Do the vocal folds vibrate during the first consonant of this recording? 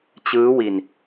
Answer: no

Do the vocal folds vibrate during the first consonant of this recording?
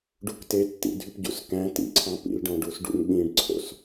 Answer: yes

